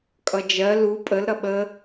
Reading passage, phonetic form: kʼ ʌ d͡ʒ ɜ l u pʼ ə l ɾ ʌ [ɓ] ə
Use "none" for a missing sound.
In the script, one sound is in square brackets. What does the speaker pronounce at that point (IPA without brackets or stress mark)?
ɓ